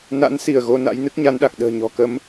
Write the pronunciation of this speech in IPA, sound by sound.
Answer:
na̰˧˥nsi˧˩ə̯ ɣo˧na̰˧˥jnɨ˦˥k̚ ɲa˨˦nɗa˨˩k̚ ɗə̤ː˨˩ɲɔ̤˨˩kə˨˦m

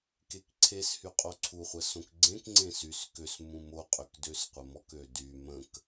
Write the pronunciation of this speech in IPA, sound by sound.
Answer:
kekǀʰeshy qʼoǀʰuχʷə sõkɡ͡ǀẽkŋ͡ǀẽ sys køs mũmoqʼøk døsqʷəmɔkø dy mə̃k

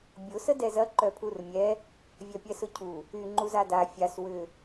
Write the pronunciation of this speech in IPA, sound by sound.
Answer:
bʲʊ sədɛzɐ ǃœpʰurmʲɛ | vʲœpʲɛsʊcʰu | y ŋ͡ǃuzada fʲas wʏ

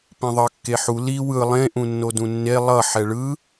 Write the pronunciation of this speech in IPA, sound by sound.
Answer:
pĩðˤʌ kːeħu li wɯ lˠẽ ʔũnːodũnːe lˠʌ ħɛɭɯ

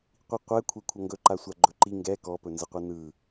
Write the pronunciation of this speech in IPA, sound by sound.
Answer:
qʷiqʷɛ kʷʰɛkʷʰʌŋɡɵǃa sʷaɡ͡ǃɵǃi ŋɡɛ kɔpɵnzəqʷɯ nɯ

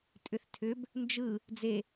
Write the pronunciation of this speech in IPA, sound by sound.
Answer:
tʼʏθtʰʏb | nd͡ʒɯ | d͡ze

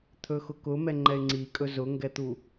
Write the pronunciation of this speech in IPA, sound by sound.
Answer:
t̪ʰɵxʊkʊ mɛŋ͡ǃɛɪ̯ŋ͡ǀikʼɵ zʊŋɡɛt̪u

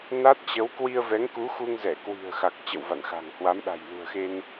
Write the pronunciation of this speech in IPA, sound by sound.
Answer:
na˦˥t̚t͡ɕə˨˦w kwi˧ə̯vɛ˨˦ŋku˨˦xu˧ŋ zɛ˧˩ kwi̤˨˩ə̯xa˨˩k̚ t͡ɕə̰˧˨wva̰˧˨nxa̤˨˩ŋ hwa˨˦mɗa̤˨˩jlṳ˨˩ə̯xe˧n

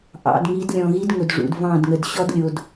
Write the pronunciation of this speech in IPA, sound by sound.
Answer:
ʔɑ̰˨d ŋi˨˦dlʲɔ̃˨ɣi˦d ŋʊ˨dʐṵ˨d vɑ̃˦˨dŋə˨d ɕɔ˦dlʲo˨d

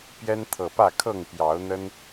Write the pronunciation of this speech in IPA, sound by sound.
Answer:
pjɛ˦nt̪ʰɤ˨˩pä˥˨kʰɤ˥˨ŋ pjɑ˨˦ʊ̯n̪ə˦n

